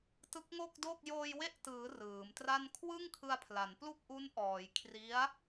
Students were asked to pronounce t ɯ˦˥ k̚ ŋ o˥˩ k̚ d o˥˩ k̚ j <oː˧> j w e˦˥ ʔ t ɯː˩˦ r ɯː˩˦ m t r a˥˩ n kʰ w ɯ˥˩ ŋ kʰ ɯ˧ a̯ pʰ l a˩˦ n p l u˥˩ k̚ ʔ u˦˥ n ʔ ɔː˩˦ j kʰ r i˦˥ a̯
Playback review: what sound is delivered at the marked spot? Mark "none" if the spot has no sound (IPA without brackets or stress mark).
oː˧